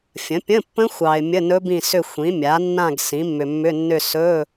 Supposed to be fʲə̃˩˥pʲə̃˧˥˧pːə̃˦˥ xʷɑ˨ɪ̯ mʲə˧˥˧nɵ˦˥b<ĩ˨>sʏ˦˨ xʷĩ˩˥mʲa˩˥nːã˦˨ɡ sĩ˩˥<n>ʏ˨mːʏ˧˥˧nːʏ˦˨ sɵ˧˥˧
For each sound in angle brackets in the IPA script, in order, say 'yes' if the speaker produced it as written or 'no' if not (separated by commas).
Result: no, no